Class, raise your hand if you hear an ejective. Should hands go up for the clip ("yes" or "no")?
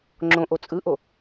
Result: yes